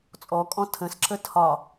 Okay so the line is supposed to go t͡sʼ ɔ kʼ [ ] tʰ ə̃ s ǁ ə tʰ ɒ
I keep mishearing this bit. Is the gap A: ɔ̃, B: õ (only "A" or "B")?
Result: A